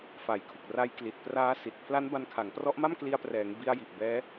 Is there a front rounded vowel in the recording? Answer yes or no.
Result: no